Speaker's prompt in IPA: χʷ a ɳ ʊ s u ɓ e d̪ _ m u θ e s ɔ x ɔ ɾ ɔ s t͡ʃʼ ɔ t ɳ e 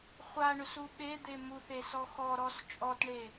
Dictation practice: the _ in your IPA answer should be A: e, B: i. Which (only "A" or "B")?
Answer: A